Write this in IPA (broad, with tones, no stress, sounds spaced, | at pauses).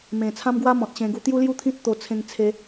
m ẽ˨˩ t͡sʰ ã˦ m ɡ w a˦ m ɔ̃˨ t̚ ɕ ẽ˧ ɡ u˧ t̪ j u˦ l j u˦ t̪ʰ ĩ˦ t̚ t̪ o˧ t͡sʰ ẽ˧ ŋ t͡sʰ e˧